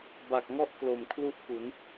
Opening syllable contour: low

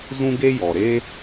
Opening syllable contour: high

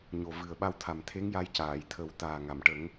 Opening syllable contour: low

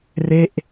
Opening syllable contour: falling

